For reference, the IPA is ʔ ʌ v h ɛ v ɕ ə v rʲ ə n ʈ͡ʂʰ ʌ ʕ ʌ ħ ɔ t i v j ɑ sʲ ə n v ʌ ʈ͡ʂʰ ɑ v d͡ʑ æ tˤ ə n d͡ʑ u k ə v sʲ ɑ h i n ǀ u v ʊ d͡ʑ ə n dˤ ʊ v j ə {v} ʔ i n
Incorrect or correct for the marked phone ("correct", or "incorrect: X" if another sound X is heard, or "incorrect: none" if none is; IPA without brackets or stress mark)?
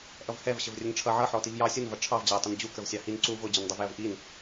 correct